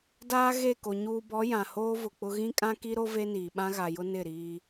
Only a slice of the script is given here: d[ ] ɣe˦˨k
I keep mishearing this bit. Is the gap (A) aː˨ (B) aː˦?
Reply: B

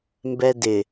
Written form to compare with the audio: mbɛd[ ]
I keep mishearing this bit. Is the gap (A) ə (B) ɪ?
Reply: B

